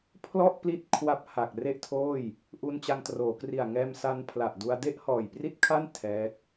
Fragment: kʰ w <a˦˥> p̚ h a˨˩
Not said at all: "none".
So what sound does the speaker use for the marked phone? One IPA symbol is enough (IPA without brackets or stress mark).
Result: a˦˥